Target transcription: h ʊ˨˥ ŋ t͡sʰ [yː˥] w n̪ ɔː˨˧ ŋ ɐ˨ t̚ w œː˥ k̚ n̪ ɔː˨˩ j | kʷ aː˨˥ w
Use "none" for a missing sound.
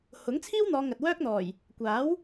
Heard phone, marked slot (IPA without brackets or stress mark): iː˥